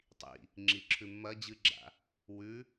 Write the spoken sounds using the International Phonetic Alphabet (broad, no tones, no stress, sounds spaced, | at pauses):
tˤ ḭ | ŋ͡ǁ i ǁʰ ʉ mː ɐ d͡ʑ ɨ ɡ͡ǁ a̰ | w ʉ